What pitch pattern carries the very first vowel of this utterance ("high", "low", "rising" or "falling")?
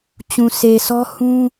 low